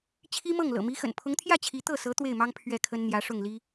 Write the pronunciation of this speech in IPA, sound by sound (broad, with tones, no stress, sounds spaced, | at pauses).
t͡ɕʰ i˥ m ɤ˥˩ ŋ l ɤ̰˨˩ m i˧˥ x ə̰˨˩ n pʰ ʊ˧˥ ŋ t̪ʰ j ä˥˩ t͡ɕʰ i˧˥ t̪ ɤ˥˩ s ɤ˧˥ t̪ w e˥˩ ɪ̯ m ɑ˥ ŋ pʰ ɥ ɛ˥˩ kʰ ə˥ n n̪ j ä˧˥ ʂ ʊ˥˩ ŋ l i˥